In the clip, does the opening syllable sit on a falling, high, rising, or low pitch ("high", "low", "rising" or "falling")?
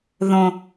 low